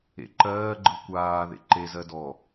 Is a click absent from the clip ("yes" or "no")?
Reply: no